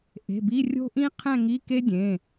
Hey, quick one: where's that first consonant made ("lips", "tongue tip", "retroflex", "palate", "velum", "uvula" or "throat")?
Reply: throat